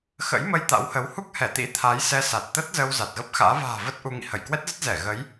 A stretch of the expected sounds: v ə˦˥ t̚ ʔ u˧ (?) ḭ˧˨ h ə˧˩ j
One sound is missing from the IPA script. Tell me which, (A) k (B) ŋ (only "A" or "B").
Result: B